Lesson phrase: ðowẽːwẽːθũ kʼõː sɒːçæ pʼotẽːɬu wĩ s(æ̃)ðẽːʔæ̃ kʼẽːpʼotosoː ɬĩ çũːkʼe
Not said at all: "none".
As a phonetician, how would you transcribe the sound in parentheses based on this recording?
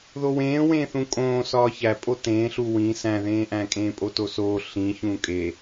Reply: æ̃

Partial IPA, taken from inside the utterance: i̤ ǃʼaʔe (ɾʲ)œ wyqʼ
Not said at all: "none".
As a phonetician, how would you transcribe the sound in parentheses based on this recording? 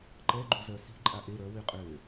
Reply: ɾ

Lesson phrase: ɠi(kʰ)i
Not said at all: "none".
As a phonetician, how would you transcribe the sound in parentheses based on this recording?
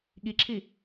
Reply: ǁʰ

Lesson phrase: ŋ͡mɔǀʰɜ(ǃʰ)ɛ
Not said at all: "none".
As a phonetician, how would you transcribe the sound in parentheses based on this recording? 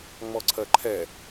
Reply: ǃʰ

